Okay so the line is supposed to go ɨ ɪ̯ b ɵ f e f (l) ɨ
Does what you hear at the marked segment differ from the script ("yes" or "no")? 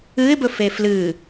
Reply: no